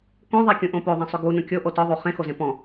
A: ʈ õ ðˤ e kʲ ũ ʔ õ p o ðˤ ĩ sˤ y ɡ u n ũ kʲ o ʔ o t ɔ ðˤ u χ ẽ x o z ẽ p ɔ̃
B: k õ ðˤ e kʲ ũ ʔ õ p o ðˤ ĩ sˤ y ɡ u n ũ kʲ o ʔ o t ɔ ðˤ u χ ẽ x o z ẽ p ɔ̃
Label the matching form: B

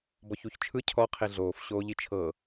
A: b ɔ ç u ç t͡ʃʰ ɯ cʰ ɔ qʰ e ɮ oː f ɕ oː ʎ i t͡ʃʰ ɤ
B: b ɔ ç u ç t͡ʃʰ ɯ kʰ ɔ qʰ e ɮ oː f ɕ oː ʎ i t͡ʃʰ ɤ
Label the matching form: A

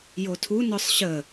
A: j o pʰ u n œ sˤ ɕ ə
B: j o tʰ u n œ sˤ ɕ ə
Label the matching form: B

